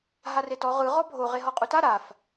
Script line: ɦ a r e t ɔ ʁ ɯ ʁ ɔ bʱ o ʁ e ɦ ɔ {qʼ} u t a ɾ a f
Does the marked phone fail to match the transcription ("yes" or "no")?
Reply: no